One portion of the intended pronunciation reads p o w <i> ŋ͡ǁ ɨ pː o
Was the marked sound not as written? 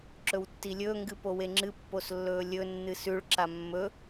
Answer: yes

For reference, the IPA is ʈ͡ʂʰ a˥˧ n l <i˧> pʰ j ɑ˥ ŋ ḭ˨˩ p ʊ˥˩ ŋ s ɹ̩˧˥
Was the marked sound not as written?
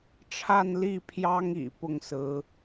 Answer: yes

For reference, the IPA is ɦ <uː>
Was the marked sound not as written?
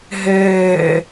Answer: yes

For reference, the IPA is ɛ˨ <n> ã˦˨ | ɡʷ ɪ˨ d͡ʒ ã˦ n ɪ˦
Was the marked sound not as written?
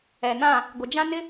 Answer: no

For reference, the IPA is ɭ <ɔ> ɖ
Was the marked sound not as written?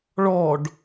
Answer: no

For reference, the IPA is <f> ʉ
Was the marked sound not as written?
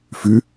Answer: no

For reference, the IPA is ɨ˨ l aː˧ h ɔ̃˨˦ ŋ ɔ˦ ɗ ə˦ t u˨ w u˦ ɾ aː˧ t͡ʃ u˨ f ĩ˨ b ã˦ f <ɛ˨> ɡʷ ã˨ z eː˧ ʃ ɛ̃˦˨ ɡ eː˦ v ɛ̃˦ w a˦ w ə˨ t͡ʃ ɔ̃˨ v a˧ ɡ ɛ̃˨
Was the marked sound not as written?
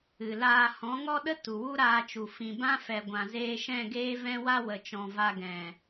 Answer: no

